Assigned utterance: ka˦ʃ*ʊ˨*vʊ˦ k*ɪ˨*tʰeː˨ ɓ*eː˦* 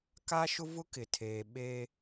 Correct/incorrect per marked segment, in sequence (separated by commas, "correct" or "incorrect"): incorrect, correct, correct